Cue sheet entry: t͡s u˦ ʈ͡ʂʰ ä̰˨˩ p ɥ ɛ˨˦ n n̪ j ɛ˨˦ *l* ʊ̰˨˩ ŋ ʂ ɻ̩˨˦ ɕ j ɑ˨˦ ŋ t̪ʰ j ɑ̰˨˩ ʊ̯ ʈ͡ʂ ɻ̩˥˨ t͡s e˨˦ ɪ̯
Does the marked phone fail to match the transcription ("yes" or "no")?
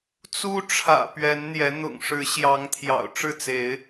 yes